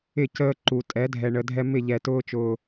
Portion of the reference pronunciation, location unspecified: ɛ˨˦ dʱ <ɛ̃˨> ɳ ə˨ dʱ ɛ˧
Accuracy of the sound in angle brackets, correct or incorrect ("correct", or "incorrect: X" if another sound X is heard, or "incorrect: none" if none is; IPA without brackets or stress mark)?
incorrect: ɛ˨